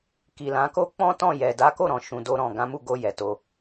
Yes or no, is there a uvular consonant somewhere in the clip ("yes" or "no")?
no